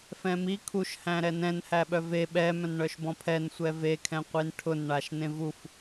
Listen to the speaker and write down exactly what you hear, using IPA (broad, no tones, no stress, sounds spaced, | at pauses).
f ɛ̃ m i kʰ u ʃ h æ̃ ɾ ɛ n ɛ̃ n h æ ɓ œ v e ɓ ɛ m œ̃ n ɳ œ ʃ b ɔ̃ pʰ ɛ n sʷ ɛ v e kʰ ɛ̃ qʷ i n ʈʰ ʊ n ɳ a ʃ n ẽ v u f